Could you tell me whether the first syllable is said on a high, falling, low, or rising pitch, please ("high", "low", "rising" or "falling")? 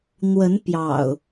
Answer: rising